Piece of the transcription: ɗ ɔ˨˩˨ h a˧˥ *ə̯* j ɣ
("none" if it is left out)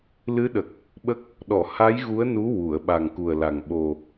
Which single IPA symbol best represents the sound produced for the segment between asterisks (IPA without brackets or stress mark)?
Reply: none